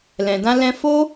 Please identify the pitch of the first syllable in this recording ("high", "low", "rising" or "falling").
low